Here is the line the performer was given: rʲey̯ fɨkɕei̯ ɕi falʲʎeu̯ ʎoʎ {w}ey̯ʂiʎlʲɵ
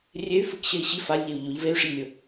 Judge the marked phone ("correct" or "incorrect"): incorrect